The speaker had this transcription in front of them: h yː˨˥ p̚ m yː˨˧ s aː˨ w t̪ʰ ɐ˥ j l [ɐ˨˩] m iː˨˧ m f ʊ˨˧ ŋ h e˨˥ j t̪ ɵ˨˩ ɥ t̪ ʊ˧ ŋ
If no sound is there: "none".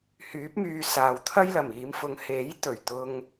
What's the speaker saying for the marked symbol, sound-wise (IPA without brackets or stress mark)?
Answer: ɐ˨˩